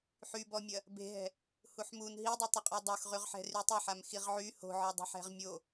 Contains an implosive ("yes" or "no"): no